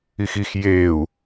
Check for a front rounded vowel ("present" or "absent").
absent